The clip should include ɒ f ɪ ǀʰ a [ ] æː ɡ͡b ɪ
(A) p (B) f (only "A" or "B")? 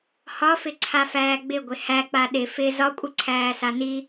B